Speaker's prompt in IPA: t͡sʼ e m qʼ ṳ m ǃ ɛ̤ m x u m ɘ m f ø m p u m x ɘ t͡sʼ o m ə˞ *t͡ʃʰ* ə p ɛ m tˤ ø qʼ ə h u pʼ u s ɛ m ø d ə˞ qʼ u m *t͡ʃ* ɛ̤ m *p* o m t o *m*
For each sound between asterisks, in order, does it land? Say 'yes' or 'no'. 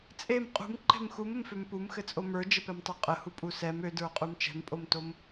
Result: no, yes, no, yes

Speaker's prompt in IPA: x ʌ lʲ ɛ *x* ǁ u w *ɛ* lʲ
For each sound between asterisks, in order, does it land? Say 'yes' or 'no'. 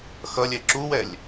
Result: no, yes

